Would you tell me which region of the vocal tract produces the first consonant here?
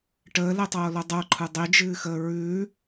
retroflex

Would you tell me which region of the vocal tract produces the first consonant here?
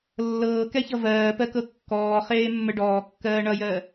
tongue tip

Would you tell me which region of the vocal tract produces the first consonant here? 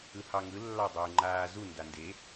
throat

